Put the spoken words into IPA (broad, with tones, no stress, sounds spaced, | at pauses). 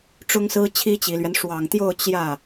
ʈ͡ʂ ʊ˥ ŋ s ɹ̩˥ t͡ɕʰ i˥ t͡ɕ i˨˩ l ɥ ɛ˦ n ʂ w ɑ˨˩ ŋ t̪ j o˥˧ ʊ̯ t͡ɕ j ä˥˩